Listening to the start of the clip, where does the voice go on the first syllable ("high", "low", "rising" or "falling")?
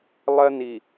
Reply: high